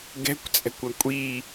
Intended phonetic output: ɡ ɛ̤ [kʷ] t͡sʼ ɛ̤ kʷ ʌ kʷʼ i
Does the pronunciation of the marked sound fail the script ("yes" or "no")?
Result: no